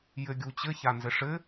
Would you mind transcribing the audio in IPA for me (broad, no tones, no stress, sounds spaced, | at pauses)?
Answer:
j ɘ ɡʲ u t͡ɕ ɘ ç a n z ɘ ʂ ɘ